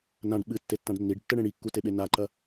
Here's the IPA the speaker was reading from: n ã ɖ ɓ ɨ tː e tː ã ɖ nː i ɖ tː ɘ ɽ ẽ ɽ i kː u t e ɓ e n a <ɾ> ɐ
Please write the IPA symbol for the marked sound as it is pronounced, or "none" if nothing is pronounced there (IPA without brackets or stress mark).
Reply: ǃ